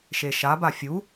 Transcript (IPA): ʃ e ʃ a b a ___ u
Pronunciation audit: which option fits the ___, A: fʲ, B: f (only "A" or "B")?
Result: A